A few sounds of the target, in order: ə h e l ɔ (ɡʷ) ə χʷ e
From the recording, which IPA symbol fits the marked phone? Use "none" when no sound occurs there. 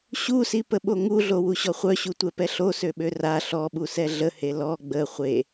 ɡ͡b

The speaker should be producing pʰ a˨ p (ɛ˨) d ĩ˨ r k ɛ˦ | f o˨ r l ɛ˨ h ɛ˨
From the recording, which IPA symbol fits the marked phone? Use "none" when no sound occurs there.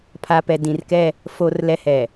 ɛ˨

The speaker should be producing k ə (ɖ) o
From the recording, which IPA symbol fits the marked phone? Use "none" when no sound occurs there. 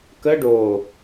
ɖ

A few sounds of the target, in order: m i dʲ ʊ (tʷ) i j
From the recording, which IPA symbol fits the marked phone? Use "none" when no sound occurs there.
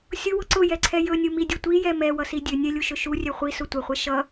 tʷ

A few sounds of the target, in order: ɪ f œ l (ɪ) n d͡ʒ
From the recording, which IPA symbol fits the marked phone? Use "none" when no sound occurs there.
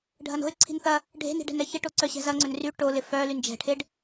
y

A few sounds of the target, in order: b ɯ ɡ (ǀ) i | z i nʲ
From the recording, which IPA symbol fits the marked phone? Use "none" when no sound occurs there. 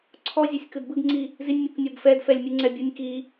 ŋ͡ǀ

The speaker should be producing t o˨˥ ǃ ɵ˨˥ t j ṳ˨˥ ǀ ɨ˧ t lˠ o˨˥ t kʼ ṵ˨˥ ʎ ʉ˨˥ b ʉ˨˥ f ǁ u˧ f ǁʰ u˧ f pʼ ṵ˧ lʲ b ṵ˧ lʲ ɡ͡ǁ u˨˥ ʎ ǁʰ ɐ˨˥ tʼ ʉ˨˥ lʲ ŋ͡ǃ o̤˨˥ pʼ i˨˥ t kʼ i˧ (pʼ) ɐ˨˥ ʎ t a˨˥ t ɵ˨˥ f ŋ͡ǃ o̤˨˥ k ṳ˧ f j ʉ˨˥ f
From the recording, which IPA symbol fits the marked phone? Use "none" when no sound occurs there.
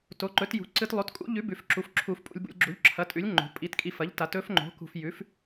f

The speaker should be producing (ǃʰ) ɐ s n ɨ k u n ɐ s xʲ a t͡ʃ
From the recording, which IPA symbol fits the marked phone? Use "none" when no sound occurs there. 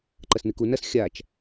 ǃ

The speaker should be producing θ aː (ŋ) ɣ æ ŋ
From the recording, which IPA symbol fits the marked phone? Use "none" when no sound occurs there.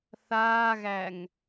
none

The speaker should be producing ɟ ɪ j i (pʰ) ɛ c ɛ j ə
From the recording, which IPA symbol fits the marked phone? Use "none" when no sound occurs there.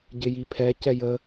pʰ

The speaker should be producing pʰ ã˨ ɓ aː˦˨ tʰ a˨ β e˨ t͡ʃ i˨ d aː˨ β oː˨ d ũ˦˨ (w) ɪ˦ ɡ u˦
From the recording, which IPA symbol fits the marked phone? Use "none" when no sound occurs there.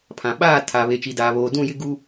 j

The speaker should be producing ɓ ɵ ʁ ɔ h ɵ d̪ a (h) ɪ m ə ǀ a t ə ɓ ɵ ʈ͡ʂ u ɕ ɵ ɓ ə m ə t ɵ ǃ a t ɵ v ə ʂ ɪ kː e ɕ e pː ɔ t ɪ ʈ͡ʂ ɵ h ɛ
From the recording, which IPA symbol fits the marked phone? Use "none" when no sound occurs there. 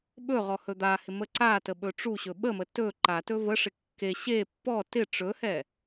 h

